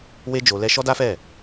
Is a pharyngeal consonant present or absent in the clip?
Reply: absent